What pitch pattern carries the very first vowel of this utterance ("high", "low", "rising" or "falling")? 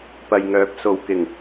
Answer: low